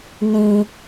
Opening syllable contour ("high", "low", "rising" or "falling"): low